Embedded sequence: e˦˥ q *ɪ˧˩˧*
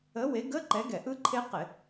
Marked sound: correct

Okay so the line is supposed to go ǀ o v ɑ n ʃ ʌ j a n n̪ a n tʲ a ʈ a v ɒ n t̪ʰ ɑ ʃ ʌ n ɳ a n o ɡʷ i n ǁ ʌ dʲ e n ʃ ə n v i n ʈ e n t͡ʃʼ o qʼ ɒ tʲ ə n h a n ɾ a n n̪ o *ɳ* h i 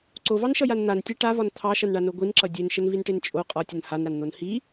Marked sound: incorrect: n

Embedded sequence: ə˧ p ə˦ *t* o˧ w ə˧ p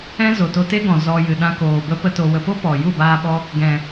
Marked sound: correct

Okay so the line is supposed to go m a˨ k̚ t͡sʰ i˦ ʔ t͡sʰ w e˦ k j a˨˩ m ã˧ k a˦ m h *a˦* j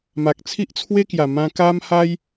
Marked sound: correct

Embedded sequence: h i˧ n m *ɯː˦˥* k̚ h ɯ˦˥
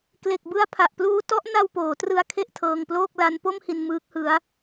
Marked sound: correct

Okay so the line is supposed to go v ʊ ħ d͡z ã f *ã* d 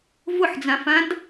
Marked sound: correct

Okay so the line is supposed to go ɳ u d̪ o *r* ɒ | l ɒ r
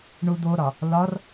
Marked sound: incorrect: ɾ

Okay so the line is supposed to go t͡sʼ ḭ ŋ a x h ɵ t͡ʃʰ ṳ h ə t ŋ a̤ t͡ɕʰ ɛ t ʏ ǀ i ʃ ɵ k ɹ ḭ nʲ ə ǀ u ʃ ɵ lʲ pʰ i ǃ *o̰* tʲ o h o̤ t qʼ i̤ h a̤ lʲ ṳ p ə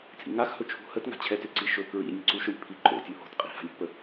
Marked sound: correct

